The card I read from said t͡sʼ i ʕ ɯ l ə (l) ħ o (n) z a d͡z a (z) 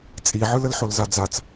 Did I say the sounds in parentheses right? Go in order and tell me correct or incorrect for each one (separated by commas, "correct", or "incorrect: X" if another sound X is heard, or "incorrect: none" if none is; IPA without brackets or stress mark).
correct, incorrect: l, incorrect: t͡s